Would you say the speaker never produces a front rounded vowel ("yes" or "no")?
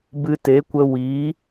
yes